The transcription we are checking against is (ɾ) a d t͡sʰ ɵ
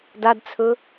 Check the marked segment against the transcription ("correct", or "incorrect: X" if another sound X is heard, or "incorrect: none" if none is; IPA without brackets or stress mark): incorrect: d